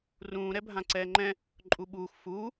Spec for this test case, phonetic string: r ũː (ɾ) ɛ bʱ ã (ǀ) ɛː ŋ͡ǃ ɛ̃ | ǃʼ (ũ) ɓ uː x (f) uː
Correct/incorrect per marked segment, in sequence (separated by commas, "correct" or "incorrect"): correct, correct, incorrect, correct